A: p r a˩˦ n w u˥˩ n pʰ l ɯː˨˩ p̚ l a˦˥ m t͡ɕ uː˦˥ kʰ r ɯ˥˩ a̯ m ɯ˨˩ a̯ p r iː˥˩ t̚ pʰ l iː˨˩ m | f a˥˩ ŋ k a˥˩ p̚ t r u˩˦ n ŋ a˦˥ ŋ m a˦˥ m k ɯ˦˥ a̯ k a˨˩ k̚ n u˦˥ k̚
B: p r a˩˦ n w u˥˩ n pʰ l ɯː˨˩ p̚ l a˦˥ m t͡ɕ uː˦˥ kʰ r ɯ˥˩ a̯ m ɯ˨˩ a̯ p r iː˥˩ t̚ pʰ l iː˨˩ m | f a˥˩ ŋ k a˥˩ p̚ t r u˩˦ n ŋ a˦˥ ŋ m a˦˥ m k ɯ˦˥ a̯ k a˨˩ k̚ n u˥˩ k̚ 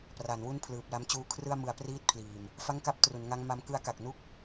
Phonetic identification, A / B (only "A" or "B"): B